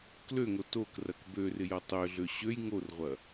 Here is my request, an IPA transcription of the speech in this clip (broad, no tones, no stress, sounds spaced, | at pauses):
k l ø ŋ o t o k r ɐ k b ø r ɪ j ɐ tˤ ø ɮ ø ɕ ø j ŋ o r ʁʷ ɐ